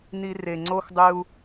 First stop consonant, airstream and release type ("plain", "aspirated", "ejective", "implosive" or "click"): click